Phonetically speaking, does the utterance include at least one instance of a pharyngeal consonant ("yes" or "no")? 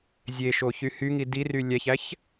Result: no